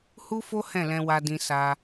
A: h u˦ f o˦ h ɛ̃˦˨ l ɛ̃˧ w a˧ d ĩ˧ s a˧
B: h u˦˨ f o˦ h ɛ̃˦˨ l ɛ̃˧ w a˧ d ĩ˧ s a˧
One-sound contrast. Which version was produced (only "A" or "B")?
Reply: A